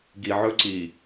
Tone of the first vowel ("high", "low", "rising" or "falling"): low